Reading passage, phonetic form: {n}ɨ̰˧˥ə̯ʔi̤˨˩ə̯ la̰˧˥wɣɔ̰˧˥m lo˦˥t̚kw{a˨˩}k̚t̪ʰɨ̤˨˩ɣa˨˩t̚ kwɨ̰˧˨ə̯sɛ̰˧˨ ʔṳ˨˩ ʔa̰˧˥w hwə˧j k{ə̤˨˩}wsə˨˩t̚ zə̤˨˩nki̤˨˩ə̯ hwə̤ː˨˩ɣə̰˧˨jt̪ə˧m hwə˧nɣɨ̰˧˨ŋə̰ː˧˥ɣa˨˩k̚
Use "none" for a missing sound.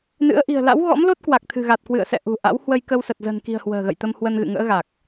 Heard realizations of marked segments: n, a˨˩, ə˧

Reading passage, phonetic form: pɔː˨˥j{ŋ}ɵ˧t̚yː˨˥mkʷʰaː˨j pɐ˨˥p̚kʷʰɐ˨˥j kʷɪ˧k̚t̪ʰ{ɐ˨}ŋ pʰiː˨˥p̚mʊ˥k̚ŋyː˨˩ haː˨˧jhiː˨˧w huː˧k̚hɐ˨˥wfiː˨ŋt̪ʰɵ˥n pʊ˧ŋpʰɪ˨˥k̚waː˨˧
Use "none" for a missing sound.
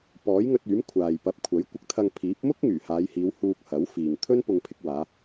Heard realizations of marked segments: ŋ, ɐ˧

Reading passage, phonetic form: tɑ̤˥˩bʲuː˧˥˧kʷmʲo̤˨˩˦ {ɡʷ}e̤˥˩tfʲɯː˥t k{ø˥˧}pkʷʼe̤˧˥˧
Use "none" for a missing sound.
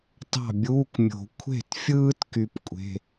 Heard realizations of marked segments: kʷʰ, y˥˧

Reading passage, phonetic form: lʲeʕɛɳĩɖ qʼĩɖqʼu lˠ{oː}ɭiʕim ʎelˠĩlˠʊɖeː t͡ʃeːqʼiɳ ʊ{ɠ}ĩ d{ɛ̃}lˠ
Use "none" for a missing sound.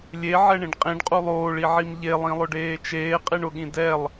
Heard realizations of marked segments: oː, ɠ, ɛ

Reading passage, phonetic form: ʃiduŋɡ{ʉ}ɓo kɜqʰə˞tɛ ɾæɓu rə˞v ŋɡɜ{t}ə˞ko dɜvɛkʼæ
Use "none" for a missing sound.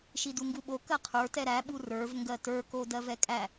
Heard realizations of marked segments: u, t

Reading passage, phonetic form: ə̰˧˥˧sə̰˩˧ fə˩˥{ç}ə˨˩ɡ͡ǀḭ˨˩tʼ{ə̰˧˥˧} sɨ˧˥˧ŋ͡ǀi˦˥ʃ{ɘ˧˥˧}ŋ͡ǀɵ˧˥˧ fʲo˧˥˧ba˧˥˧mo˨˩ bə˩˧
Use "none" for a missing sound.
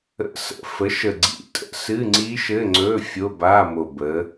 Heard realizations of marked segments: ʃ, ə̰˧˥˧, ɘ˧˥˧

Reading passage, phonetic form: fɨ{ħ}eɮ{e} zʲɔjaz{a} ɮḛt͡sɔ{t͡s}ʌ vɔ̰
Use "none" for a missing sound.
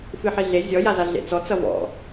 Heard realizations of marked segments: ħ, e, a, t͡s

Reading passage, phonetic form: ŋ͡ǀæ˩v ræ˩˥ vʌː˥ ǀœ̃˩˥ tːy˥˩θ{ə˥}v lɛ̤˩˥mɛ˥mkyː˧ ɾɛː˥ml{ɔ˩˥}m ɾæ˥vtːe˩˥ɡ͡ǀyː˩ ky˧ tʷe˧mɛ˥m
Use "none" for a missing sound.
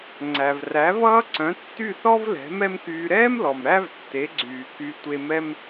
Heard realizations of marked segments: ɔ˥, ɔ˩

